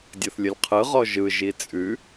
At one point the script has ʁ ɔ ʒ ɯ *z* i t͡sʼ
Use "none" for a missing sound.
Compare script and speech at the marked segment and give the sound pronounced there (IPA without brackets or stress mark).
ʒ